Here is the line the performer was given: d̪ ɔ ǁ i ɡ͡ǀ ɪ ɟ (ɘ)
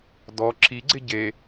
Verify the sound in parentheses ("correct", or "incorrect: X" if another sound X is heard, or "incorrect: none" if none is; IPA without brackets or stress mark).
incorrect: e